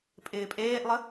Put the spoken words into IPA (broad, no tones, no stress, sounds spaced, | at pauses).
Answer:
pʼ ɪː pʼ eː ʔ lˠ ə